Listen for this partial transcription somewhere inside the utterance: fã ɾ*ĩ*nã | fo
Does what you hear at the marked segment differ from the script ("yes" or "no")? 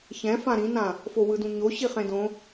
no